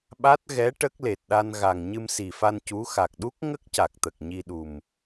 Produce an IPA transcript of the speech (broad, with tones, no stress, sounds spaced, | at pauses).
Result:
ɓ a˦˥ t̚ ɣ ɛ˧˥ ʈ ə˦˥ k̚ l e˨˩ t̚ ɗ a˧ n ɣ a˨˩ ŋ ɲ ɨ˧ m s i˨˩ f a˧ n c u˧˥ x a˨˩ k̚ ɗ u˦˥ k̚ ŋ ə˦˥ k̚ c a˨˩ k̚ t̪ ə˨˩ k̚ ɲ i˧ ɗ u˨˩ m